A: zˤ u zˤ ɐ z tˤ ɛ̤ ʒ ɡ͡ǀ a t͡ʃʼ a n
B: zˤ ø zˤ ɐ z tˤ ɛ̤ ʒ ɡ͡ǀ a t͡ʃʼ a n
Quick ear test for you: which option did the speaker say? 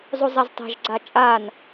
A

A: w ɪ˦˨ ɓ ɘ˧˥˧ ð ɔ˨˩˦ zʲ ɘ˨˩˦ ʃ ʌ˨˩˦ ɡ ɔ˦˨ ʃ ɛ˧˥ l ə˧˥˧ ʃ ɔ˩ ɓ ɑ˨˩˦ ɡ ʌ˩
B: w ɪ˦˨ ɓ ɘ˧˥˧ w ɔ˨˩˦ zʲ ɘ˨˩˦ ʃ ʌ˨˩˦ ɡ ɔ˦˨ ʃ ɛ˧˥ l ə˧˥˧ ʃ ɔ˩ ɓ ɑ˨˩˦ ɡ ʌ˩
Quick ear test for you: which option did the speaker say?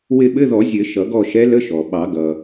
A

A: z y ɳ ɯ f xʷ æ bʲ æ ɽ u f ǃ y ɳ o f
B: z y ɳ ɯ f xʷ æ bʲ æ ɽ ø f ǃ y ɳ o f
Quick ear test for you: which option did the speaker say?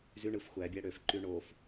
B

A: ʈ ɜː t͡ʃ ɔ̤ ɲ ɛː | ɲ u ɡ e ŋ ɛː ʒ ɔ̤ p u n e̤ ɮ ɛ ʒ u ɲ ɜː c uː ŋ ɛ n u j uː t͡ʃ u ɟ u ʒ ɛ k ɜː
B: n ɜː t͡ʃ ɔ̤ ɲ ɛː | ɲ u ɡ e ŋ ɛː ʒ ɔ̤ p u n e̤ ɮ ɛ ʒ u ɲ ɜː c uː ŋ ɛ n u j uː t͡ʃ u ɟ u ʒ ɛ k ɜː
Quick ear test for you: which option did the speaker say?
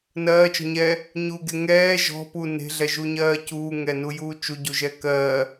B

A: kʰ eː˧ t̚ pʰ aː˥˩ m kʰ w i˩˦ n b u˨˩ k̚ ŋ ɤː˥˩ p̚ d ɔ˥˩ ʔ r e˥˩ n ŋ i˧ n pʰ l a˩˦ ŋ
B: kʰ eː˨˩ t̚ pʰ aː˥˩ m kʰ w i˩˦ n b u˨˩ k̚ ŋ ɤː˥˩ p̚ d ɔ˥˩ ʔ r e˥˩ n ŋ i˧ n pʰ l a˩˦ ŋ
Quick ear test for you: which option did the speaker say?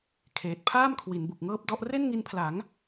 B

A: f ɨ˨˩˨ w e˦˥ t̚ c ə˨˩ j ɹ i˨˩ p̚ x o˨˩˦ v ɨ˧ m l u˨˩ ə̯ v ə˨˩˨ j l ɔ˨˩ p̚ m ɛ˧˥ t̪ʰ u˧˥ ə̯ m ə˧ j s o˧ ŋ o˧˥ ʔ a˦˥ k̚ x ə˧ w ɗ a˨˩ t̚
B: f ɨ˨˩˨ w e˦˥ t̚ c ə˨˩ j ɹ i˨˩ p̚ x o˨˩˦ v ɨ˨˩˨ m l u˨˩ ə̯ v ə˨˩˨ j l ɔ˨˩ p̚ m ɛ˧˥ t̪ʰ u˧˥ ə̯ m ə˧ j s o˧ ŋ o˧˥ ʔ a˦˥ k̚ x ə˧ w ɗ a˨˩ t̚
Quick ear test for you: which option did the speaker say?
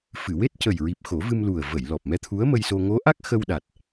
A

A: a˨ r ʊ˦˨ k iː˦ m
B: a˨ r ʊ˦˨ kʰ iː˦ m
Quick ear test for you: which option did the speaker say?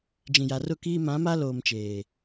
A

